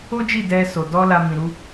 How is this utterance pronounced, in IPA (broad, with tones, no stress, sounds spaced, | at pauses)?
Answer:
o˦ d͡ʒ i˦˨ d ɛ˧ s o˨ d ɔ˧ l a˧ m ĩ˨ ɾ u˨˦